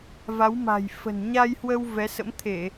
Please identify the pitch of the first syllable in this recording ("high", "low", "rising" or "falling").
rising